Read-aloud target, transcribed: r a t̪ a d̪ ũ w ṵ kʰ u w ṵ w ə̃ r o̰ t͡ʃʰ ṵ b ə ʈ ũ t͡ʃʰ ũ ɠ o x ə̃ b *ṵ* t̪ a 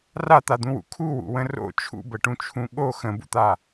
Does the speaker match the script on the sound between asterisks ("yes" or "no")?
yes